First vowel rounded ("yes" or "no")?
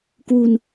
yes